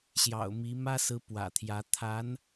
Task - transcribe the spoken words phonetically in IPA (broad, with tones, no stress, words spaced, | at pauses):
ɕjɑ̰˨˩ʊ̯mi˧˥ mä˥sɹ̩˧˥ pwä̰˨˩t̪ʰjä˧˥ t̪ʰa˧˥n